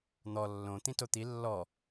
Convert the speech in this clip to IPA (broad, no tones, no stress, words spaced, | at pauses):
n̪ɔ lːõ t̪ĩtot̪i lːɔ